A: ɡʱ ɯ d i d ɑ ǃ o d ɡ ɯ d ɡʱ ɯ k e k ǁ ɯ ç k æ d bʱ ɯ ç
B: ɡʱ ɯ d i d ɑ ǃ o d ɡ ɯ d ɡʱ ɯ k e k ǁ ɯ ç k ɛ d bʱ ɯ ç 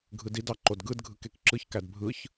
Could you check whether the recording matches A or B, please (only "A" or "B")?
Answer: A